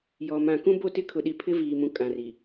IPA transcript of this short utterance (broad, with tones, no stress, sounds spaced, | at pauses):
j ɔ˨ m ã˨ k ũ˦ b o˦˨ t ɪ˦ kʰ ʊ˨ ɗ i˨ pʰ ɪ˦ v iː˨ m ũ˨ kʼ ã˨ r i˨